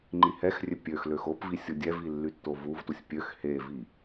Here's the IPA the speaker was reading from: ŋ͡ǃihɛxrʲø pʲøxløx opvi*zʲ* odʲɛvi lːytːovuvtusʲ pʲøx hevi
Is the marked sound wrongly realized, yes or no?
yes